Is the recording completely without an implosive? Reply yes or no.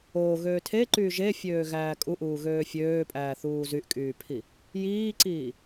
yes